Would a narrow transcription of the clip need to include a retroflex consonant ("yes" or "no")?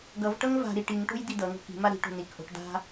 yes